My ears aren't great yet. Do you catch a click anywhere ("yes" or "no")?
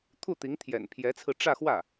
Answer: no